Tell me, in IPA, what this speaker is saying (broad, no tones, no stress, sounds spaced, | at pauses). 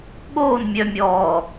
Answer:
ɠ oː n mʲ œ mʲ ɔː